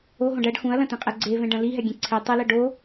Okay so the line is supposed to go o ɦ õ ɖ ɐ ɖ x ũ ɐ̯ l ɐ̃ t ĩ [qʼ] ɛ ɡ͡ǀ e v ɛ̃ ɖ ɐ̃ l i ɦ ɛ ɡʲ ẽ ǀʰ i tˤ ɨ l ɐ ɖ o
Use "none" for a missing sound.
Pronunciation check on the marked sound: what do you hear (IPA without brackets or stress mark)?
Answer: qʼ